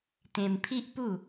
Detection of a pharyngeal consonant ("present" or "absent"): absent